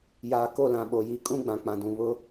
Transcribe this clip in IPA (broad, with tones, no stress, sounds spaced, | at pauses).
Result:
j aː˨ k o˦˨ l ã˨ ɓ o˨ j i˦ kʼ ũ˦ ɡ͡b ã˨ k͡p ã˨ d ũ˨ β ʊ˦